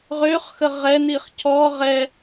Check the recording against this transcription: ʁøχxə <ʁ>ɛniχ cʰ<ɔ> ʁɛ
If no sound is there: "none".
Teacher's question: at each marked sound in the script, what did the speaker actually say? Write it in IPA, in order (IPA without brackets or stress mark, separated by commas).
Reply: ʁ, ɔ